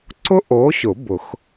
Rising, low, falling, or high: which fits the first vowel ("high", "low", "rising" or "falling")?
high